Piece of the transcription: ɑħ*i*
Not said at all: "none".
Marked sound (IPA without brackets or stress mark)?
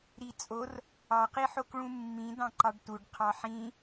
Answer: ĩ